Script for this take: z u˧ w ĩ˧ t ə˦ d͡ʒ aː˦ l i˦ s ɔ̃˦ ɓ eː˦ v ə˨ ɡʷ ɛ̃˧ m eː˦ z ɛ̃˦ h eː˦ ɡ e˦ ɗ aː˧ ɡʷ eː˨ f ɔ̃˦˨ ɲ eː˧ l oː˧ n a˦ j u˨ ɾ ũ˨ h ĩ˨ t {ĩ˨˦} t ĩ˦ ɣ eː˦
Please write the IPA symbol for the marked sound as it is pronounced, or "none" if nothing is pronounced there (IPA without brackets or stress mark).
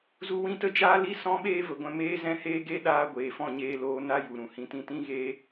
ĩ˧